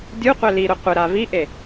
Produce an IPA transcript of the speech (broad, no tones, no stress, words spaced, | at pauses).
dʲuqʷɛ liɾʊ qʷɪɾa viʔe